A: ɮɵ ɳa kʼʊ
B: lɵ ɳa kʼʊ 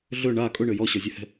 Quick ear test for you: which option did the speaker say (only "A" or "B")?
A